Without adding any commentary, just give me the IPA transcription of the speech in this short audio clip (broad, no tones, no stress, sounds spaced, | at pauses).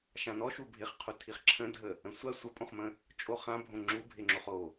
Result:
ʃ ã n ɔ ʃ u bʱ ɪ χ qʰ u tʰ i χ ǁʰ ə̃ dʱ ə | ə̃ sʷ a sʷ ə pʼ õ χ m ə̃ | t͡ʃʼ o χ ã bʱ õ ŋ͡ǁ u bʱ ɪ ŋ͡ǁ o χ o